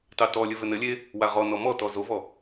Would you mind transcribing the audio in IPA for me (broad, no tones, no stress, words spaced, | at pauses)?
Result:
tɑtɔlʲɘ vɘnɘlʲe | waʁɔnɔ mɔtɔ zovɔ